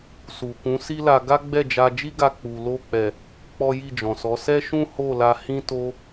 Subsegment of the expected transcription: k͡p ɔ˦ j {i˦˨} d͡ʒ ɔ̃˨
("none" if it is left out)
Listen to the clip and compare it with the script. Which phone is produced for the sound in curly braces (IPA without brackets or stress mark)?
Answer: i˦˨